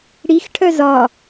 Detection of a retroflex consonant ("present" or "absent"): present